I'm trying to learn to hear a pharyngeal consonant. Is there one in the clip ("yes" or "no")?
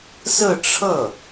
no